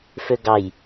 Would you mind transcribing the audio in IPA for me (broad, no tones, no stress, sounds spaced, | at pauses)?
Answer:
f ø ɡ ɑ j